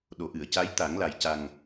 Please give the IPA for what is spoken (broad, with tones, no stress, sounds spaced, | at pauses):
ɗ o˨˩˨ ʔ ɨ˨˩˨ ə̯ c a˧˥ j t̪ a˨˩˦ ŋ l a˨˩ j c a˨˩ ŋ